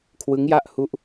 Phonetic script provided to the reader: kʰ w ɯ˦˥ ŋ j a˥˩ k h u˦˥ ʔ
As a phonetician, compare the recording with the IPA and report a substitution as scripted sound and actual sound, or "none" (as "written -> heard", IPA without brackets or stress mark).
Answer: k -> ʔ